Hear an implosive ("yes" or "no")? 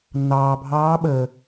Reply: yes